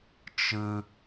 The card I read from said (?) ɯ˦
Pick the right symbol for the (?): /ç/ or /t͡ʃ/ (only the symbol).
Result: t͡ʃ